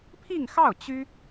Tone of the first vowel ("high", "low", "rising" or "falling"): falling